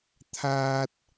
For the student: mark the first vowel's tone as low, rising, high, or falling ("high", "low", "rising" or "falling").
high